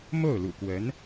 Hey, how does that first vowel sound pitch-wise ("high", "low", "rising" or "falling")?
falling